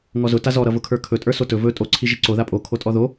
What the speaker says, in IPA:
ŋ ɔ z ʊ t a z ɔ ɾ ʌ v ʊ kʰ ə˞ kʰ ɵ tʼ ə˞ s o t ɵ v ɵ tʼ o ǀʰ i ʒ i ǀ o ð a pʼ o kʰ o tʼ ɔ ð o

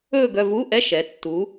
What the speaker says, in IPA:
ɵː˥˧ ɡ œ˥˧ v u˧˥˧ ʔ ɛ˧˥˧ ʃ ɛ˩˧ tː u˩˧

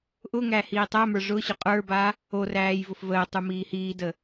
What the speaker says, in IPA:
ʔ ʊ ŋ æ h iː tˤ æ m ə˞ ʐ ʊ ɕ ʊ qʼ ə˞ b a | o r æː j v ʊ f v əː tˤ u m iː h iː d ə

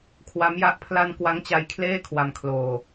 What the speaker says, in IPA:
kʰ w a˦˥ m j a˦˥ ʔ pʰ l a˧ n k w a˦˥ ŋ t͡ɕ a˦˥ j kʰ l eː˥˩ kʰ w a˧ m kʰ l oː˧

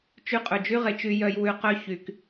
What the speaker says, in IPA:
t͡ʃ y˧ qʼ ɵ˨ d͡ʒ y˦ ʁ e˨ t͡ʃ y˧ j œ˧ j w ʉ˧ q œ˦ ç y˨ k

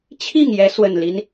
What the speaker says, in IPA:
t͡ɕʰ i˥˨ ŋ j ɛ˨˦ s w ə˨˩ n l i˦ n

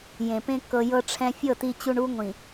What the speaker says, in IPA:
j ẽ˨ p ẽ˦ k ɤ˨ j ɤ˦ ʈ͡ʂʰ ɛ̃˦ fʲ ɤ˦˨ t i˦ t͡ɕ u˦ ɳ u˦ ŋʷ ĩ˨

